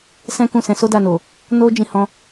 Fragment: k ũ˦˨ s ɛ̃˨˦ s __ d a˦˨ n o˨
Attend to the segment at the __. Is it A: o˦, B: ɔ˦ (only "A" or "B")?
A